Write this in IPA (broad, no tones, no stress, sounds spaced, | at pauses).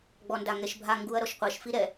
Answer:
ɡ͡b ɔ n d a ŋ ɛ ʃ bʱ a ŋ ɡ u ɐ̯ ɾ ɔ ʃ qʷ ɐ ʃ f i ɾ ɛ